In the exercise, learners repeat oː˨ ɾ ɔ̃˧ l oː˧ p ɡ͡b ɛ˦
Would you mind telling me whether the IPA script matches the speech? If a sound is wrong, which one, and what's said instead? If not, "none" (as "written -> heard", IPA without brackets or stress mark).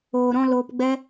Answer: none